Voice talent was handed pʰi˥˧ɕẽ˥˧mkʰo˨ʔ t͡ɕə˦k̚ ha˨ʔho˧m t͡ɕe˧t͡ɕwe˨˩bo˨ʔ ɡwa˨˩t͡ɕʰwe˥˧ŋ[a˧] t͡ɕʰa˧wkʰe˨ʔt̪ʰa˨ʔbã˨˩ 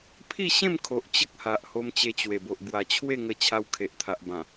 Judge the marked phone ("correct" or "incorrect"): incorrect